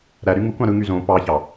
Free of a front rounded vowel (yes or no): no